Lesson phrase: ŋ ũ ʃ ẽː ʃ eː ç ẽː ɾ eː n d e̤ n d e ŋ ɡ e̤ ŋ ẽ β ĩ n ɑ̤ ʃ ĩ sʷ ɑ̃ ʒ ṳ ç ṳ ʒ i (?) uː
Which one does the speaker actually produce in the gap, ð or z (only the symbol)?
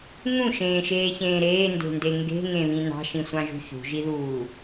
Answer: ð